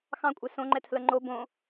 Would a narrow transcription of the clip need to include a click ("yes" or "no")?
yes